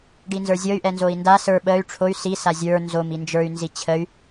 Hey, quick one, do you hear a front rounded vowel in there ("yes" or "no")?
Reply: yes